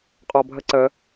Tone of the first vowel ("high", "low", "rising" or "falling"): low